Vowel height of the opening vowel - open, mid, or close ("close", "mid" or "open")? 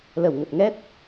mid